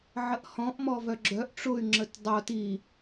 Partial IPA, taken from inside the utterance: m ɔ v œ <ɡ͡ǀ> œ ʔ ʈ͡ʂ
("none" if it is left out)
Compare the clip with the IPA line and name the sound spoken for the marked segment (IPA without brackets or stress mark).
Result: ɡ͡ǁ